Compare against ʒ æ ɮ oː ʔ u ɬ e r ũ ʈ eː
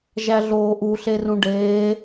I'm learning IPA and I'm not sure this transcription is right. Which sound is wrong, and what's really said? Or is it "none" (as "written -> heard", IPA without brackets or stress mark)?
ʈ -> ɖ